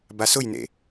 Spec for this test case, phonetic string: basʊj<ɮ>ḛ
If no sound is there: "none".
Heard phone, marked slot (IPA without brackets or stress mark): n